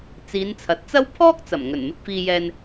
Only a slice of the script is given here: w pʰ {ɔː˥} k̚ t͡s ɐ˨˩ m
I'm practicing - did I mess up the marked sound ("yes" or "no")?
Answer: no